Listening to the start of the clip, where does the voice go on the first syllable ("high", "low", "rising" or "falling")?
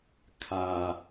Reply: low